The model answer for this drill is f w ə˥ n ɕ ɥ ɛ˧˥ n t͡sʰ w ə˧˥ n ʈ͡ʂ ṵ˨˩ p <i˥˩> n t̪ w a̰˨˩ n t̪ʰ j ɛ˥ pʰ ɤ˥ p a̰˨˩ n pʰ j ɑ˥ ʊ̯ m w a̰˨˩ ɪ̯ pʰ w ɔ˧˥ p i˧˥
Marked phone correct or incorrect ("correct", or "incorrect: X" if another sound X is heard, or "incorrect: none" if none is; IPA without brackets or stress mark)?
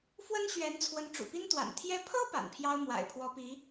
incorrect: i˥